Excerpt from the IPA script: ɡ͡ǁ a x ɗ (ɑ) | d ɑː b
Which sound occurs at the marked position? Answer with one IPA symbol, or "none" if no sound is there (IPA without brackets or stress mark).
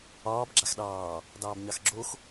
ɑː